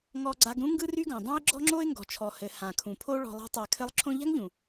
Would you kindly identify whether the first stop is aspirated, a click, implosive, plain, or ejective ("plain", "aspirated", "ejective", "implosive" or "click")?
click